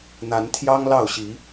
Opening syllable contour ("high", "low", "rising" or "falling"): rising